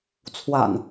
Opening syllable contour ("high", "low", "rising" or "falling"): low